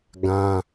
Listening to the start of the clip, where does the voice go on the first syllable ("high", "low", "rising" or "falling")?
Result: high